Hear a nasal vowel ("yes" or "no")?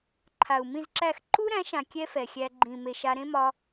yes